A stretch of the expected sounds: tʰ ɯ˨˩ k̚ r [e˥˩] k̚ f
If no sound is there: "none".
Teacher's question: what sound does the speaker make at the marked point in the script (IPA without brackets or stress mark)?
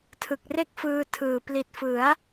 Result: e˥˩